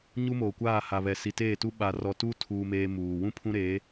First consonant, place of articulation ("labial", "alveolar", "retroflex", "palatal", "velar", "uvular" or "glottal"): palatal